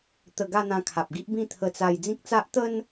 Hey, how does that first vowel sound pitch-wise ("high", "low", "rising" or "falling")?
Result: falling